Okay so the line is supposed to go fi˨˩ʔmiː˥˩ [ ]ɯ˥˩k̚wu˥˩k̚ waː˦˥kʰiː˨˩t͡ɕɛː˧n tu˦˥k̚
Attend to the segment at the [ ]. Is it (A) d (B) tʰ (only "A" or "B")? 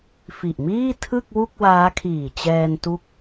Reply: B